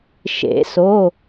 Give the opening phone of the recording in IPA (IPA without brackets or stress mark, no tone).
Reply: ʃ